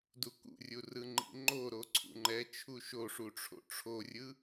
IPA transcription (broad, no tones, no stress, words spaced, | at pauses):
dukṵrʲu rɯŋ͡ǃḭŋ͡ǃoɾo ǀʰṵŋ͡ǃɛt͡ʃʰu ʃoʂu ʈ͡ʂʰo̰ʈ͡ʂʰorʲɯ